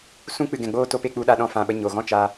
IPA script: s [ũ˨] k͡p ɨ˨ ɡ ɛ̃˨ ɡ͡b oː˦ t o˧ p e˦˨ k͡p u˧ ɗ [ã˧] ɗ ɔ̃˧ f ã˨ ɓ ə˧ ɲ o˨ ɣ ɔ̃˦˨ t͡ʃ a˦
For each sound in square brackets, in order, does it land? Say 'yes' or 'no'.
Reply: no, no

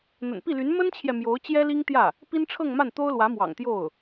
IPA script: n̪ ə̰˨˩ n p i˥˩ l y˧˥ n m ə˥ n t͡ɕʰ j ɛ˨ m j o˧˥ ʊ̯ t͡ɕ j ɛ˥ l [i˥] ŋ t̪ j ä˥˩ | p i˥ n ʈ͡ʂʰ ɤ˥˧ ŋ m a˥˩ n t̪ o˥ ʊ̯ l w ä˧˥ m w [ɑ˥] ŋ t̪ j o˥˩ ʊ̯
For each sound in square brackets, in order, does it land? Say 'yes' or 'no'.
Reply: yes, no

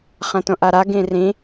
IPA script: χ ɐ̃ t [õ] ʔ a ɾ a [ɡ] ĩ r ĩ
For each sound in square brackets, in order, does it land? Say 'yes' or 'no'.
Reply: yes, yes

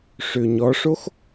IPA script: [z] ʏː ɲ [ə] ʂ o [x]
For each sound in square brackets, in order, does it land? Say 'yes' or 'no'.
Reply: no, no, yes

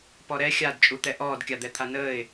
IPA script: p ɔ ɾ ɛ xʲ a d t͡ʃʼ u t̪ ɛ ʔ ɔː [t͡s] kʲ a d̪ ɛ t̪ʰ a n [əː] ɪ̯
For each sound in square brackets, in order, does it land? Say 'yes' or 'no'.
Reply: no, yes

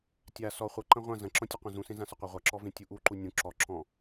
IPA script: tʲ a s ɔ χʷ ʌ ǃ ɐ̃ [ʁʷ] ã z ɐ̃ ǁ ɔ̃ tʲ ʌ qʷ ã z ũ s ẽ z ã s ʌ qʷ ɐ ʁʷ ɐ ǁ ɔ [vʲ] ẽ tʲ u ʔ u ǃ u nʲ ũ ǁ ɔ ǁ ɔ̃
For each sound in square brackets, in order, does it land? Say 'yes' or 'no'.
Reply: yes, no

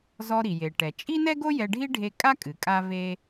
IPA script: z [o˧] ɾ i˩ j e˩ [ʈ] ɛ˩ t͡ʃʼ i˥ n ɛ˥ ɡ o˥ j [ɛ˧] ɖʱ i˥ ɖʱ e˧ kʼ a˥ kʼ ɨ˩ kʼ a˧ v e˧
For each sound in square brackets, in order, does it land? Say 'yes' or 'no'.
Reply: no, yes, yes

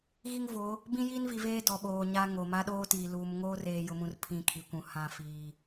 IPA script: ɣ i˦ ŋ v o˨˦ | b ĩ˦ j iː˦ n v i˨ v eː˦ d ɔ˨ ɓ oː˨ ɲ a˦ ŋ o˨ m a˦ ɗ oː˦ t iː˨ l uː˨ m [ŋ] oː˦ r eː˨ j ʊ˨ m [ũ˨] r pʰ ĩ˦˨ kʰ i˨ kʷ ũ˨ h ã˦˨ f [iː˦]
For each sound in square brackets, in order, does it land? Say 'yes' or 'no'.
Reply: yes, yes, no

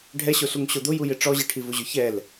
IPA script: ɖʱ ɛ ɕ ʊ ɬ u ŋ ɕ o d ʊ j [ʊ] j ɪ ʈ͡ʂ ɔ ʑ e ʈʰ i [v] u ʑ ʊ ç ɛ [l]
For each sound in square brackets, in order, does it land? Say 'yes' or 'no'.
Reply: no, yes, yes

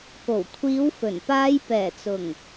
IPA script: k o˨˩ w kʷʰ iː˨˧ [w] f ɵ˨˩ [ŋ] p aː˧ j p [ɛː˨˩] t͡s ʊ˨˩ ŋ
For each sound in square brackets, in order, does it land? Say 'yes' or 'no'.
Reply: yes, no, yes

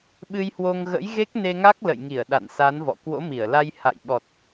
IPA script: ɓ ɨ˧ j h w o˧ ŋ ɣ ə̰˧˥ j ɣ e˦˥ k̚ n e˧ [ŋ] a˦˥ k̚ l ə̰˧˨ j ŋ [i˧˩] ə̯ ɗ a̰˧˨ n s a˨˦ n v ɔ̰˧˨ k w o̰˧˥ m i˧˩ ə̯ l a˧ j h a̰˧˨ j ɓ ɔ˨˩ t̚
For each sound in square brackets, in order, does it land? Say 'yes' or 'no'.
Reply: yes, yes

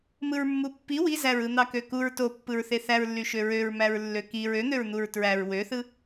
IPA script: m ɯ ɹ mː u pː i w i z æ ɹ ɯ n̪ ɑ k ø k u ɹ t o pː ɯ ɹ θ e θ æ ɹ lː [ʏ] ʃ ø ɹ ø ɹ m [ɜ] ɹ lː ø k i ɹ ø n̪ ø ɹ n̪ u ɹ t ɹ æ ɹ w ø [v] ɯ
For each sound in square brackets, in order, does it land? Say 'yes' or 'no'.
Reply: no, no, no

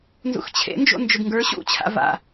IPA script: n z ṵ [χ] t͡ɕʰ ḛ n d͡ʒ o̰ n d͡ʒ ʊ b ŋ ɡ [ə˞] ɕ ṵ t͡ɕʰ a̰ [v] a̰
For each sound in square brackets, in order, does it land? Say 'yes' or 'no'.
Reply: no, yes, yes

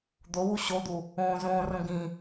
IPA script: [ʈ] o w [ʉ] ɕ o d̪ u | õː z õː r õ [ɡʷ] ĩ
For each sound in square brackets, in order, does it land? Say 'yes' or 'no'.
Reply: no, no, no

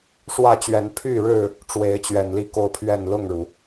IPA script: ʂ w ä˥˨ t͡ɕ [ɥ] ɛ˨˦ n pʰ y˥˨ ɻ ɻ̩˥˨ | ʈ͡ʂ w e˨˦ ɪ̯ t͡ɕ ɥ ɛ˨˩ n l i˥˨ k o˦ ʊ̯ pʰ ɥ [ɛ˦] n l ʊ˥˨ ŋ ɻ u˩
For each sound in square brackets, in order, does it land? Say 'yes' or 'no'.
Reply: yes, no

